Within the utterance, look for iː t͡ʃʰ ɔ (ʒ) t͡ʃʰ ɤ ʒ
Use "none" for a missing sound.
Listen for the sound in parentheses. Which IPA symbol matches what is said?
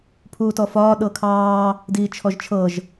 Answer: ʒ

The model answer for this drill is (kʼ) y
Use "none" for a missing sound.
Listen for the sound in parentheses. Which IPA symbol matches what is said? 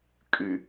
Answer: kʼ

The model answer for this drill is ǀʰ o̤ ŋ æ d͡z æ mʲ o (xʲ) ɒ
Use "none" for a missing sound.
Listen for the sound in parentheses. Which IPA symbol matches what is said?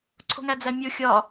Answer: xʲ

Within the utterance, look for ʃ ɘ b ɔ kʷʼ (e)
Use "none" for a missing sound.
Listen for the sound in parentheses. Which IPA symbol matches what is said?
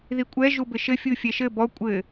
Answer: ɘ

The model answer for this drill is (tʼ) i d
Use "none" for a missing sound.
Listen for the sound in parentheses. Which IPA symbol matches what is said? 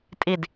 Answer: tʼ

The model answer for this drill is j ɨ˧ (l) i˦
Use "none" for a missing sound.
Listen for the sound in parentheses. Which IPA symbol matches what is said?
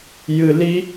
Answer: l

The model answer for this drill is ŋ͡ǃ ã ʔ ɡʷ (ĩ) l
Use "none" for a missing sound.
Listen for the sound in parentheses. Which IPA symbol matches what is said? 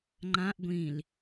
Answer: ĩ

